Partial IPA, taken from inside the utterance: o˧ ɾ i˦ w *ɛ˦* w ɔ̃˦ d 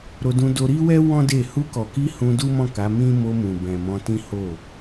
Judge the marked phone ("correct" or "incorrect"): correct